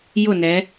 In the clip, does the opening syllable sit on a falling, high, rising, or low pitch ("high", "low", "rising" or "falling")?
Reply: falling